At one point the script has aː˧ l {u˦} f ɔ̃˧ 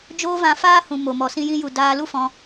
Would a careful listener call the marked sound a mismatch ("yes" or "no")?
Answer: no